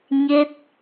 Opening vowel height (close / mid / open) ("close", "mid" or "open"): mid